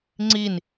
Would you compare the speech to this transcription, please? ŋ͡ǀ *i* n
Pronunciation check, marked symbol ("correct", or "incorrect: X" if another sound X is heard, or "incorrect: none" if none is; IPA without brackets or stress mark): correct